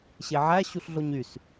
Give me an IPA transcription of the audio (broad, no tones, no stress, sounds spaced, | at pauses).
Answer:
ɕ e ʕ æ ɕ u ɬ ɮ o ɲ y s